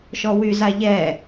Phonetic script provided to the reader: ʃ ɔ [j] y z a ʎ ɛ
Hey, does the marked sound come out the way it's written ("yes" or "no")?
no